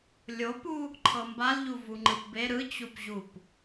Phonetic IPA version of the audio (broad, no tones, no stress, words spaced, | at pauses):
lʲopu | ǃʰɤmbalʎu vuŋ͡ǃɯpbe ɾɯt͡ɕupʑup